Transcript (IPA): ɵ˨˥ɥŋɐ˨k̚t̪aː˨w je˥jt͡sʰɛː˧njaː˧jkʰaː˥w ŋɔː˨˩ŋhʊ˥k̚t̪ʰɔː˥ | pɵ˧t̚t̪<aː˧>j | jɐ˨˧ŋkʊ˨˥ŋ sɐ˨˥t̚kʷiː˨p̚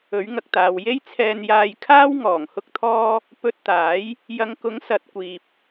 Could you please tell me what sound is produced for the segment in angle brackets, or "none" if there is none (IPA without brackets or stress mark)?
aː˨˥